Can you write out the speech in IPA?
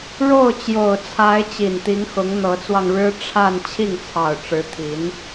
ɻ o˥˩ ʊ̯ t͡ɕ j o˨˩ ʊ̯ t͡sʰ a˧˥ ɪ̯ t͡ɕ i˨˩ n t̪ i˧˥ ŋ x ʊ˧˥ ŋ n̪ ɤ˧˥ t͡s w ɑ˧ ŋ ɻ ɻ̩˥ ʈ͡ʂʰ a˥˧ n t͡ɕʰ i˥˩ ŋ t͡sʰ ɑ˨˩ ʊ̯ ʈ͡ʂ ɻ̩˧˥ t̪ʰ i˧˥ n

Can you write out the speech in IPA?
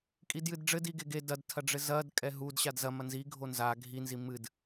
kʼ i d j ɨ d ɖ͡ʐ ɘ d i ɡ e ɡ e d ɐ d tʰ ɐ ɖ͡ʐ ɘ z ɐ d kʼ ɛ ɦ u d ɕ a d z ɐ m ɐ n z i ɡʱ o n z a ɡʱ i n z i m ɨ d

